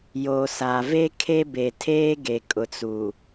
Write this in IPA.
j o˨ s a˨ v e˦ kʰ e˦ b e˨ tʰ eː˦ ɡ e˨ kʼ ʊ˨ t͡s u˨

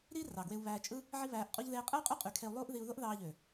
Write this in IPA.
ɾ i˦ r ɑ˨ ɡ w e˧ u̯ β æː˧ t͡ʃʼ ɯ˦ | ʕ i˦ β æː˧ ʔ qʼ u˦ ʎ ð eː˧ qʼ ɯ˦ y̯ qʼ y˦ qʼ y˨˦ kʰ e˧ u̯ lˠ uː˦ ʔ ð i˧ u̯ ð o˦ ʔ ð ɑː˧ ʎ ø˨

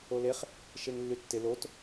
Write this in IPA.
o l e χ | ʃ e ŋ lː y tː ɪ l o t

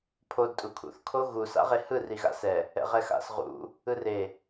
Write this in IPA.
pʰ o d tʼ u kʰ ṵ θ kʰ o ɣ u s a̰ ʁ e h ɯ r i ɣ a̰ s ɛ | ɛ̰ ʁ ɛ x a̰ s ʁ ṵ | ɯ r e

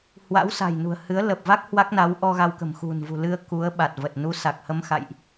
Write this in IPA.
h w a̰˧˥ w s a̤˨˩ j n ṳ˨˩ ə̯ h ɨ˨˦ ə̯ l ə˨˩ p̚ v a˦˥ k̚ h w a˦˥ k̚ n a˨˦ w ʔ ɔ˧ ɣ a˧ w k ə̤˨˩ m x ṳ˨˩ n v ṳ˨˩ l ɨ˧ ə̯ k u˨˦ ə̯ ɓ a˨˩ t̚ v ə˨˩ t̚ n u˨˦ s a˨˩ k̚ h ə˧ m x a̰˧˨ j ʔ

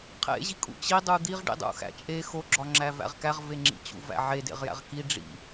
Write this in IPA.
qʰ ḛ ʑ i kʼ ṵ t͡ɕ i dˤ u d̪ i ʁ ɖ ḭ dˤ ṵ x æ̰ t͡ʃʼ e x o ɡ͡ǁ ɒ ŋ͡ǁ æ v æ̰ ʁ k æ ʁ v e ŋ͡ǁ ḭ t͡ɕ ṵ v æ̰ ʕ e d ḛ ʁ j æ̰ ʁ k i ɖ͡ʐ ḭ

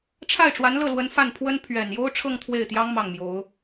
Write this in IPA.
ʈ͡ʂʰ a˥˩ ɪ̯ ʈ͡ʂ w a˧˥ n l ɤ˥˩ l w ə˧˥ n f a˥˩ n pʰ w ə˥ n pʰ ɥ ɛ˨˩ n j o˥ ʊ̯ ʈ͡ʂʰ ɤ˥˧ ŋ t̪ʰ w e˥˩ ɪ̯ t̪ j ɑ˥ ŋ m ɑ˥˩ ŋ m j o˧˥ ʊ̯

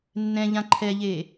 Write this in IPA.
nː ɛ̃ ʎ ã ǃʰ ɛ ʎ e

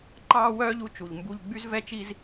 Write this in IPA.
ǃ ɑː˥ w œː˥ ʎ u˧ t͡ʃ u˩ ʎ m b u˧ ʎ ɡ͡b y˥ z v ɛ˥ t͡ʃ i˥ z

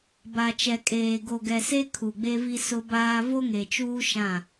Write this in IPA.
b a˨ t͡ʃ ɛ˨ kʼ eː˨ ɡ o˨ ɡ ɛ˨ s e˦ kʰ u˨ ɡ͡b e˦ v i˦ s ʊ˦ b aː˦ v o˦ ŋ e˨ t͡ʃ uː˦ ʃ ã˦˨

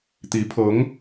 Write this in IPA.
t̪ i˧˥ pʰ ɤ˧˥ ŋ

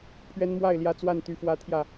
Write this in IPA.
pʰ ɥ ɛ˦ n m w a˥˨ ɪ̯ l j ä˥˨ t͡s w a˥˨ n t̪ y˦ f w ä˦ t̪ʰ j ä˥˨

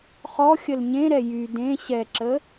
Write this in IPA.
χ ɔ xʲ ə l ɲ ẽ ɾ ɛ j y d ẽ ɕ ɛ ǁ ə

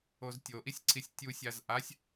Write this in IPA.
o z tʲ o ʔ i sʲ ǀʰ i sʲ tʲ u sʲ a z ʔ a sʲ

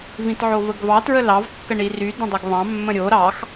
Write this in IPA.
v ĩ t ʕ o v ə ɡ v ɑ t ɹ ə l ɑ v kː ə ɳ i r y d ə̃ dˤ ɵ ɡ β ɑ̃ mː ə̃ ɾʲ o ɾ ɑ x

